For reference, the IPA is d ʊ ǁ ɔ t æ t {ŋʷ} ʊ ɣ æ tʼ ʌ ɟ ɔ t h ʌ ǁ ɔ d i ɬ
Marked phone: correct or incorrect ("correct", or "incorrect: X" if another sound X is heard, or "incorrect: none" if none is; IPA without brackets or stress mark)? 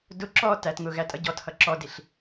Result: incorrect: ŋ